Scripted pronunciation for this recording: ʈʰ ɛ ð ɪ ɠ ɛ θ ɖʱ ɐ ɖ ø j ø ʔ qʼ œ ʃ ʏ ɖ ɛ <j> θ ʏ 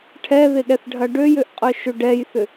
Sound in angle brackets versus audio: correct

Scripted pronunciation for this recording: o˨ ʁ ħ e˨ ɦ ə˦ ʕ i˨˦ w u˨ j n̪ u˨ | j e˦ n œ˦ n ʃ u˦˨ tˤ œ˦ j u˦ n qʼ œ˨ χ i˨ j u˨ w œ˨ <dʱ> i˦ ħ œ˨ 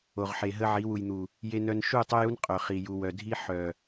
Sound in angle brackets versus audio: correct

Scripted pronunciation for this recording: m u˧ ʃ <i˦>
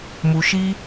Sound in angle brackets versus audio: correct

